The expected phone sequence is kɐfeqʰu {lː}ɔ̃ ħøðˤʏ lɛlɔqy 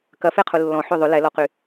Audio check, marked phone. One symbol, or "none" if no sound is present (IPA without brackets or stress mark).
lː